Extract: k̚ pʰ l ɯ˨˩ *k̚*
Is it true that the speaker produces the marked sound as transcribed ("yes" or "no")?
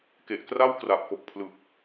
yes